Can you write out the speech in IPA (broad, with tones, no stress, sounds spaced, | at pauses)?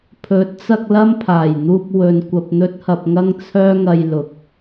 pʰ ɵ˨˥ t̚ t͡s ɐ˧ k̚ l ɐ˥ m pʰ aː˨˩ j n̪ uː˧ p̚ w ɵ˨ n kʷ ɐ˧ p̚ n̪ ɵ˥ t̚ h ɐ˧ p̚ ŋ ɐ˥ ŋ t͡sʰ œː˥ ŋ ɐ˧ j l ʊ˨˥ k̚